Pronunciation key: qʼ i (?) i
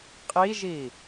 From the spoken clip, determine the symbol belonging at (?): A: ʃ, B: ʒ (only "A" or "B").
B